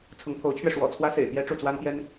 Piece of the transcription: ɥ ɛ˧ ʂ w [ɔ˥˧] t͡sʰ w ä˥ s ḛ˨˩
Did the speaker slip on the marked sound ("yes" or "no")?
yes